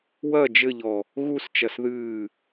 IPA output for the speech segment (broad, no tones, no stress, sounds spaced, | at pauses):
w ɐ d͡ʒ ɘ ʎ ɔ | ɣ u s t͡ʃ ɐ s ð ɨː